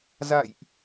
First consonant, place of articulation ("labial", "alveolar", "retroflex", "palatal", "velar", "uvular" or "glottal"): alveolar